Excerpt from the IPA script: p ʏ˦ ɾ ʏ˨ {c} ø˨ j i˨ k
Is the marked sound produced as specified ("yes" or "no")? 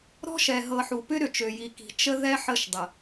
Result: no